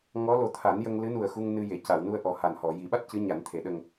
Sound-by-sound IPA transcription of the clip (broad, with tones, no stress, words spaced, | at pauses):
ŋɔ˧˥ lo˨˩t̪ʰa˨˩˦njə˧ŋ lɨ˧˥nu˨˩ə̯xu˧ŋ nɨ˧je˨˩˨ ca˨˩˨wnu˧ə̯ ʔɔ˨˩ha˨˩n hɔ˨˩˨ji˨˩˦ɓa˦˥t̚ cɨ˧˥ɲa˨˩˦n t̪ʰe˨˩˦ɗə˧ŋ